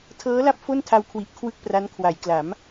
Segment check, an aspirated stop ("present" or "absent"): present